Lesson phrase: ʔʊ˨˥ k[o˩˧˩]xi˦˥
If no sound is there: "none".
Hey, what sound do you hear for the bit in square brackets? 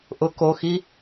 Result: o˩˧˩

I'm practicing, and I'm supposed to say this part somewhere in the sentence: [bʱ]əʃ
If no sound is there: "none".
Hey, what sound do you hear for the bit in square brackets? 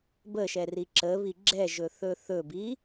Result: b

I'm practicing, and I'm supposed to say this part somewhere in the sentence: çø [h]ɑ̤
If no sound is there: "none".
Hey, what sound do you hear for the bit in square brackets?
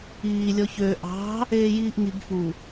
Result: ʔ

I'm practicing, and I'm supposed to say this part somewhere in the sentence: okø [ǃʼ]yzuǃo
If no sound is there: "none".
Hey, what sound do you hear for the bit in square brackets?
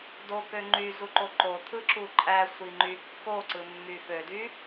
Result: ŋ͡ǃ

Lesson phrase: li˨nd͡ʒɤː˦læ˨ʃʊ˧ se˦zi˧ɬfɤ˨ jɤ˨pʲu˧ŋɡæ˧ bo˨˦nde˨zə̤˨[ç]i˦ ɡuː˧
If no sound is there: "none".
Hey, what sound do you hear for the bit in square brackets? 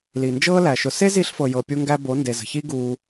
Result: ç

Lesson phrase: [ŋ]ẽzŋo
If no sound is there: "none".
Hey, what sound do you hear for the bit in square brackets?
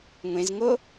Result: ŋʷ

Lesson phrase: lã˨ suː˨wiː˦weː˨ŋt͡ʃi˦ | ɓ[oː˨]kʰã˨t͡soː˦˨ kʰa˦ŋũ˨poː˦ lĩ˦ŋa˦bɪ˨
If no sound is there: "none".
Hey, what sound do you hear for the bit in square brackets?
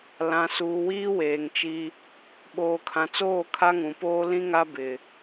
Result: oː˨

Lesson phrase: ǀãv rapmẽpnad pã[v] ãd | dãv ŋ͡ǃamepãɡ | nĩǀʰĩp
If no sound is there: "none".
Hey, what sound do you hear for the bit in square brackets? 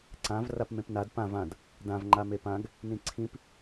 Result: v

